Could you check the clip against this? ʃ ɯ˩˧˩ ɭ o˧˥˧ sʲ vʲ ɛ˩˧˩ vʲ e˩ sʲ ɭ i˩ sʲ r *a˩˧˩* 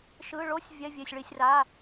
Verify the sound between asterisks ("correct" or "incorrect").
correct